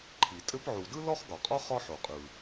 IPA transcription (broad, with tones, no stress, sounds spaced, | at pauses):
ǃʰ i˩ tʼ ɘ˥ p ʕ u˩ d ɯ˥ l ɔ˥ χ ɡ ɒ˩ qʼ ɒ˥ χ ɒ˥ ħ o˩ qʼ ɯ˩